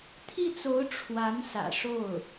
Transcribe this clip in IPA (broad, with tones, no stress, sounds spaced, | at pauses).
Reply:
t̪ʰ i˥˩ t͡s o˧˥ ʊ̯ ʈ͡ʂʰ w a˧˥ n s ä̰˨˩ ʂ o˥˩ ʊ̯